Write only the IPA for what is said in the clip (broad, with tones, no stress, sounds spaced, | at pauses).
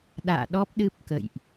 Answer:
ɗ a̰ː˧˨ ɗ ɔ˦˥ p̚ ɗ ɨ˦˥ p̚ k ə̰˧˨ j ʔ